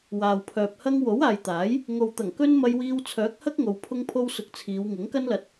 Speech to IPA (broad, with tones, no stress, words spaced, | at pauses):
waː˨wpʰœː˨p̚hɐ˥ŋ wo˨˥waː˨jt̪aː˨˥j | ŋo˨wt̪ɐ˨˩ŋ kɵ˥n mɐ˧jwiː˧w t͡sʰœː˨˥k̚hɐ˥k̚ ŋo˧wpʰʊ˥ŋpʰo˥w sʊ˧k̚ t͡sʰiː˨˧w ŋɪ˨˥ŋkɐ˥nlɐ˧t̚